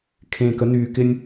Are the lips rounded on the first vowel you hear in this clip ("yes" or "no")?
no